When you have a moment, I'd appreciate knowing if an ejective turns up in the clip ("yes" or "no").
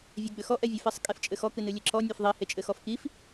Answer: yes